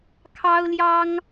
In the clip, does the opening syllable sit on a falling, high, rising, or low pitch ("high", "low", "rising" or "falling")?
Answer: high